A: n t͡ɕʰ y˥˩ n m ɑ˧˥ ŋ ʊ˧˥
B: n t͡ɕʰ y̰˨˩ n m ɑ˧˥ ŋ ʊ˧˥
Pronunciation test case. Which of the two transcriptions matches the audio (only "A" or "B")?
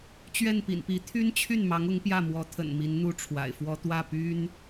A